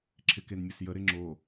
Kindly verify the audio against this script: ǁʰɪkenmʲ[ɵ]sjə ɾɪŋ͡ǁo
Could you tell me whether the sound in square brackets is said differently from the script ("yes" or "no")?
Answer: yes